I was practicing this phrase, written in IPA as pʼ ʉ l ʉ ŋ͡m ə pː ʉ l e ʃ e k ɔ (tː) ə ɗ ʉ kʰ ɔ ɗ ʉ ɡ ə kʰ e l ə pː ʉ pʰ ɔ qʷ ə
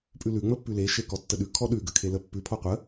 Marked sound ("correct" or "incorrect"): correct